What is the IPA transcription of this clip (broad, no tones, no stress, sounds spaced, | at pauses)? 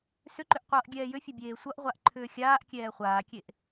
s ʏ ǃ ʏ ʔ qʷ ʌː ʔ ɡʲ ɛː j ʏ fʲ ʌ bʲ eː sʷ ʌ ʔ ʁʷ a ʔ ǃʰ ʏː xʲ aː ʔ kʲ ɛː χʷ aː kʲ e ʔ